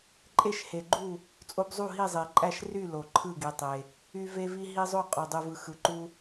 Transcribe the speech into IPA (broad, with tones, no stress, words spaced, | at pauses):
ǃʼe˥˨ʃhe˨ɡ͡ǃu˥˨ | t͡sʼo˦bzˤu˥˨ ɦi˥˨ zˤe˨ǃʼæ˥˨ʃ ry˥˨ lo˨ǃʰɯ˥˨ɡi˨tˤe˨ | y˦ ve˦vi˦ ɦi˦zˤo˥˨ qʼo˨dˤu˨vɯ˨ xɯ˨ǃu˦